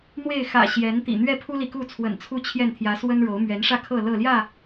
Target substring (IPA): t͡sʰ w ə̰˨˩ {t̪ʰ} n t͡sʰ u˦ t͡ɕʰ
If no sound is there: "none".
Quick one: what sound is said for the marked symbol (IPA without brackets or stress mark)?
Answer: none